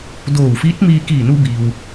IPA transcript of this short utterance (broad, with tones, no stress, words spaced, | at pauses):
doː˧˩wfiː˧˥t̚miː˧ kiː˧˩nu˧biː˩w